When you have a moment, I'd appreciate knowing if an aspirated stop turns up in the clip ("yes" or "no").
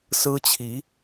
yes